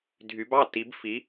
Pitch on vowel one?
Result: rising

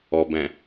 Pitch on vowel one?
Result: low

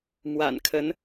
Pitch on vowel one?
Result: low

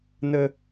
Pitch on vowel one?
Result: high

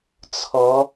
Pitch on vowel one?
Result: rising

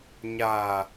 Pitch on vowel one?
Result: low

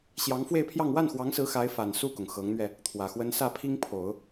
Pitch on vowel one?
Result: rising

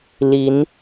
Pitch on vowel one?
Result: rising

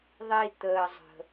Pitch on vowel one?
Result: low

